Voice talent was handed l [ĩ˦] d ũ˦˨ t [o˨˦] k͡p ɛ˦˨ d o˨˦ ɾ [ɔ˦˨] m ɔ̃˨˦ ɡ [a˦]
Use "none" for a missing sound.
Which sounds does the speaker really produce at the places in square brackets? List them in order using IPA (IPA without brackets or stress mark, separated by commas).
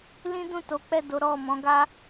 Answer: ĩ˦, o˨˦, ɔ˦˨, a˦